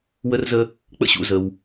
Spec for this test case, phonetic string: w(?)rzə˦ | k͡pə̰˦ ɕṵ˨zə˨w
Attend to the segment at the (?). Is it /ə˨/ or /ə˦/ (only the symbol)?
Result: ə˦